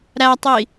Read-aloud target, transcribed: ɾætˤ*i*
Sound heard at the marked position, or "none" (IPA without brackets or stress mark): i